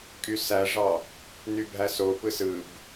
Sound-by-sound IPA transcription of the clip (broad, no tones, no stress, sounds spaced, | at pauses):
kʼ y s æ ʐ ɑ | n y bʱ æ s o p ɯ s ɯ b